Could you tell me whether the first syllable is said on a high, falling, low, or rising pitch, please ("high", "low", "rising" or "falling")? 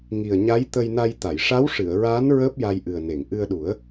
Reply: low